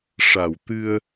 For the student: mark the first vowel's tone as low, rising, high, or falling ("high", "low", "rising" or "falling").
low